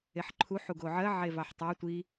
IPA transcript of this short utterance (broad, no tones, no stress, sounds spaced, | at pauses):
e ħ ǃʰ u ħ u ɡ o ʕ ɜ ʕ e v ɑ ħ tˤ ɑ tʷ i